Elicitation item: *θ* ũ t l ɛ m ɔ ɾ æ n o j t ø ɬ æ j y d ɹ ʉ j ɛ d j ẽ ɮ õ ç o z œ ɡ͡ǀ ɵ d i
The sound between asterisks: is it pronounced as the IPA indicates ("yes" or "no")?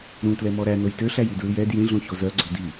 no